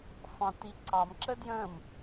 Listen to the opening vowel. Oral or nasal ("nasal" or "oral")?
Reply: nasal